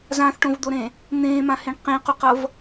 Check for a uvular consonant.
present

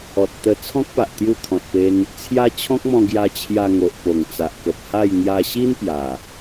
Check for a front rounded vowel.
absent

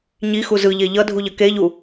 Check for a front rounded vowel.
absent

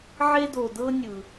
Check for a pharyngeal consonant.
present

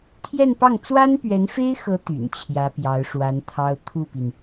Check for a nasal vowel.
absent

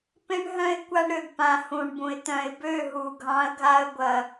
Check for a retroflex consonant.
present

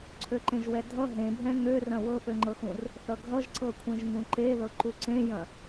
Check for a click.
present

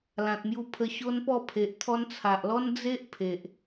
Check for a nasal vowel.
present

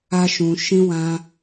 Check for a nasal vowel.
present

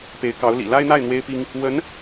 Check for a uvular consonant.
absent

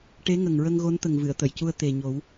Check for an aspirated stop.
absent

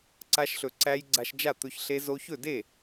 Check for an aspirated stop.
absent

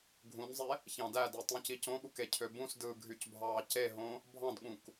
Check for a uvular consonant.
absent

